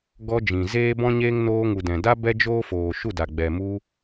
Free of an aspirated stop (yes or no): yes